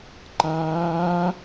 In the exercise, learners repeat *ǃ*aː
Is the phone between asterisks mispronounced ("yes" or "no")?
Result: no